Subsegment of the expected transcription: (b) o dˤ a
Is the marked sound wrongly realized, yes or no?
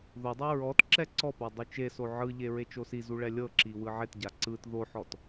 yes